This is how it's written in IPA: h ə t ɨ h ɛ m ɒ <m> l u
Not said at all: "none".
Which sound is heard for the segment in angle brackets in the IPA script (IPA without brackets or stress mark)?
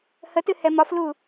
f